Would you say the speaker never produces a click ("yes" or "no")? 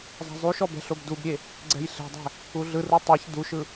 no